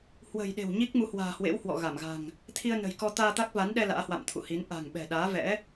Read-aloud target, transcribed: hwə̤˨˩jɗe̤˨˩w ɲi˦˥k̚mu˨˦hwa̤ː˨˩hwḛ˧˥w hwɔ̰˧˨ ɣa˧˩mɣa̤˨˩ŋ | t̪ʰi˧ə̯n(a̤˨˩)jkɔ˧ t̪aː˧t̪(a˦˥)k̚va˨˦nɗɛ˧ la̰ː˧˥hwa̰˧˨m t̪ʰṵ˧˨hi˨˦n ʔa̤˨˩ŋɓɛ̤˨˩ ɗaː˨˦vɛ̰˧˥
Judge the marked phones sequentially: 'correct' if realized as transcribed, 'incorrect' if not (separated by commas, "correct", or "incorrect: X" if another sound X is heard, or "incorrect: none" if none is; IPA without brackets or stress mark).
incorrect: ə̤˨˩, correct